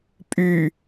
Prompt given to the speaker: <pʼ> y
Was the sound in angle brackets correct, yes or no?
yes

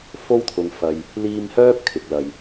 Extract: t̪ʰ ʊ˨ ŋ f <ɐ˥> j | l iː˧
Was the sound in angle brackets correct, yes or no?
no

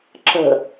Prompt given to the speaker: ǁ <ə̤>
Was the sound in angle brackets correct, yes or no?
yes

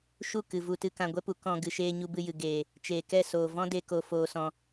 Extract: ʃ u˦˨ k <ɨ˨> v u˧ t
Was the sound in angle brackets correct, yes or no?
yes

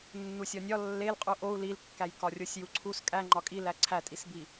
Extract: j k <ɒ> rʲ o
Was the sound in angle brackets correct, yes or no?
yes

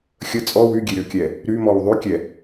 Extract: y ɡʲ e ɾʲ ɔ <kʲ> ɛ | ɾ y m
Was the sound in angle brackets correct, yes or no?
yes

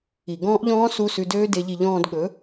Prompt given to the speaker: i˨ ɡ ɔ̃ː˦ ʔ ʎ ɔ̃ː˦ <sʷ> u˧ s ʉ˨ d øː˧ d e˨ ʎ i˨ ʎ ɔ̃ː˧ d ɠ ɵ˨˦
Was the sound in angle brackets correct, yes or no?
no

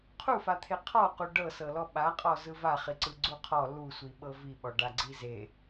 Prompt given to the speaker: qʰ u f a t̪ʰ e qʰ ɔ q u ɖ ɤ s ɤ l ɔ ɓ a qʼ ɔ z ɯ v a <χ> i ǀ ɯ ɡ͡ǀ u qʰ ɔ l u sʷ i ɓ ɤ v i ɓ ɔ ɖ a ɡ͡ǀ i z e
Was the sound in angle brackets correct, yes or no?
yes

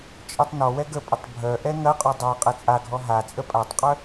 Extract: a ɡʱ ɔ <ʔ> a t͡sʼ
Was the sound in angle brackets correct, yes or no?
no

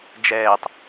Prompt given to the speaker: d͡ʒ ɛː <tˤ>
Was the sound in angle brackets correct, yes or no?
yes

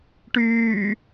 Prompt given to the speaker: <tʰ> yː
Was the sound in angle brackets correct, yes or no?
no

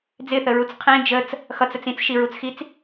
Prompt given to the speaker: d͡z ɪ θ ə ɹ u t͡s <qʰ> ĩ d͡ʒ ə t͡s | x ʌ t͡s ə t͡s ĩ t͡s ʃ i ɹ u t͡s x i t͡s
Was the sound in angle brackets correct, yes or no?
yes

